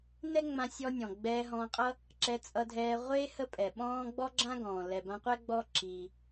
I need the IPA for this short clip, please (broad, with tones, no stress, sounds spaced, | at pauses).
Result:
n ɛ˥ ŋ͡m ã˧ sʲ ɔ˧ nʲ ɔ̃˩ ɡ͡b ɛː˧ ɦ ɔ̃ː˧ qʼ ʌ˥ | ǁ ɛ˧ t͡sʼ ʌ˧ dʱ ɛː˧ ʁʷ e˥ h ə˥ pʼ ɛ˩ ɓ ɔ̃ː˥ ɡ͡b ɔ˥ ɡ͡ǁ ã˥ ɡ ɔ̃ː˩ l ɛ˩ b ã˧ qʷ ɛ˥ ɡ͡b ɔ˥ ǁʰ i˩